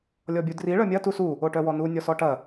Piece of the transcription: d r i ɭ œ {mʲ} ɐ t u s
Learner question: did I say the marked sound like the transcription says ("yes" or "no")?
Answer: yes